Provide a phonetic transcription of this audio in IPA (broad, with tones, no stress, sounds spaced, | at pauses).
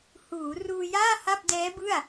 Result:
h uː˩˦ r uː˧ j aː˥˩ h a˥˩ p̚ d ɛː˦˥ b ɯ˥˩ a̯